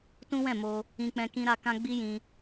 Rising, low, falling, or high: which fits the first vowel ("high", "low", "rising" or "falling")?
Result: high